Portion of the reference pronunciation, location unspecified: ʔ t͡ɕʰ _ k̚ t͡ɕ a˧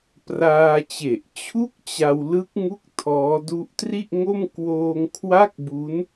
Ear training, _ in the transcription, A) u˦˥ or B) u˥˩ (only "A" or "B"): B